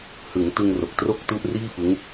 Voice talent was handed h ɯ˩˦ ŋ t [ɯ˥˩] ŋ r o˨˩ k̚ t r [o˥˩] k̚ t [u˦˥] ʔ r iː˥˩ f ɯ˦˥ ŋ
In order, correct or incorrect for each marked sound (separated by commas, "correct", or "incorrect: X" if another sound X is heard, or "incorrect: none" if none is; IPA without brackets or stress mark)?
incorrect: ɯ˧, correct, correct